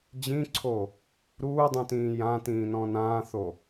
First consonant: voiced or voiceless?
voiced